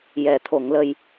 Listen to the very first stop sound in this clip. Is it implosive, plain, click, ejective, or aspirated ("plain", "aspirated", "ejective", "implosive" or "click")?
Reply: aspirated